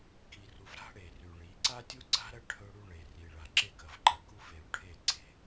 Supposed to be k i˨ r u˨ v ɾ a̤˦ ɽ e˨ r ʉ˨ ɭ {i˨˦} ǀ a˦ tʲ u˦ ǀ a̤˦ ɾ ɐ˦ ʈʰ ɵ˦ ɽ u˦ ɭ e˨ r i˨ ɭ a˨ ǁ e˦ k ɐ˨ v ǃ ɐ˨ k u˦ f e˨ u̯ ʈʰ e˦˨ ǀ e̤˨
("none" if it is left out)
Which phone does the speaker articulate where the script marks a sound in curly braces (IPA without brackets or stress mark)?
i˨˦